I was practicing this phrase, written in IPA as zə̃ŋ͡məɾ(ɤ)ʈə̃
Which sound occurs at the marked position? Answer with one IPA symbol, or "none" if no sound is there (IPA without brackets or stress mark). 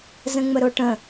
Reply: o